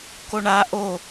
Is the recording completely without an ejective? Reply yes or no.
yes